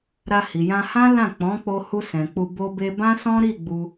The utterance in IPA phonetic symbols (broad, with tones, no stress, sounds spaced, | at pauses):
ɾ a˧ h i˨ j ã˧ h ã˦ l ã˦˨ k͡p ɔ̃˨˦ k͡p o˧ h u˧ s ɛ̃˨ k͡p u˧ b o˧ b e˧ b ã˦ s ɔ̃˦ ɾ i˦˨ ɡ͡b u˧